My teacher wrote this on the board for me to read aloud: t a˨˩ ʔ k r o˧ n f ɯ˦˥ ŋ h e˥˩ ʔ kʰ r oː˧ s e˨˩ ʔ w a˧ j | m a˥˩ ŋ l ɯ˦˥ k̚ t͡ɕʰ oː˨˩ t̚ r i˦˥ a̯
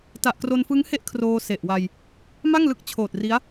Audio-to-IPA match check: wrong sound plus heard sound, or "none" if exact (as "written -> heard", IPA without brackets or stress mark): none